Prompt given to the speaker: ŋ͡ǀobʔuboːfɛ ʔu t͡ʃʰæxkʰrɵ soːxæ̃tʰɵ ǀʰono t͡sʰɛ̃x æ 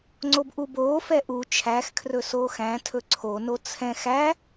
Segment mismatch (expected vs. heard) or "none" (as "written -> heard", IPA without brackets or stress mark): none